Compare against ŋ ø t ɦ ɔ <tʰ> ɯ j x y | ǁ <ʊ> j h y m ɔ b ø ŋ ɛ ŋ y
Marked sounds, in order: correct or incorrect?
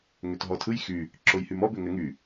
correct, correct

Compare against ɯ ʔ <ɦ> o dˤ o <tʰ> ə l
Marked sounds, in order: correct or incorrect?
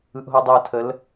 correct, correct

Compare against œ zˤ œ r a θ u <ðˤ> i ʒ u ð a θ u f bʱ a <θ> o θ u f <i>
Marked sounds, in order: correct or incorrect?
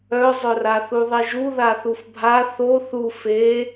correct, correct, incorrect

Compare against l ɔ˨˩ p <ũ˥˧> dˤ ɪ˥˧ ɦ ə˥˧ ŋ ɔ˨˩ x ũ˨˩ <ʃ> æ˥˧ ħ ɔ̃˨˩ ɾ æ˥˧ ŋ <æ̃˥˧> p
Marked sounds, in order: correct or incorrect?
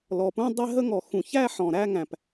correct, incorrect, incorrect

